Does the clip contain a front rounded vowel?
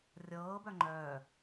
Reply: yes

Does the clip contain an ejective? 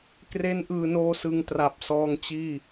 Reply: no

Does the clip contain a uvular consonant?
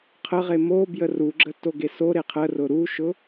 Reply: yes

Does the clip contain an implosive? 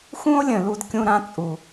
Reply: no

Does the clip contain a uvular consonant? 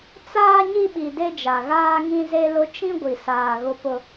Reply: no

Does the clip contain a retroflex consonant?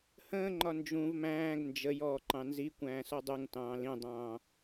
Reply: no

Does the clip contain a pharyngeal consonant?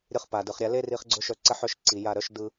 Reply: yes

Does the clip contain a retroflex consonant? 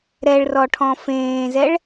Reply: yes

